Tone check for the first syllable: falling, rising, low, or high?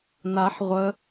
rising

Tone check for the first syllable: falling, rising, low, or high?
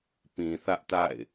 low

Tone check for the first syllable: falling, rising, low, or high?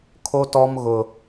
high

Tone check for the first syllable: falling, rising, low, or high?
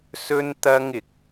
high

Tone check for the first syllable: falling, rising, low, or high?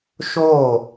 falling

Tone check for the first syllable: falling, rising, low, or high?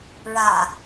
low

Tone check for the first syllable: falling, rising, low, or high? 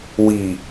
low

